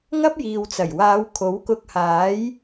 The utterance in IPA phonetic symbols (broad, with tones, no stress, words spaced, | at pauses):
ŋɐ˥p̚jiː˨wt͡sɐ˨˩jwaː˨˧w kʰo˨˥wkʊ˧k̚haː˨˥j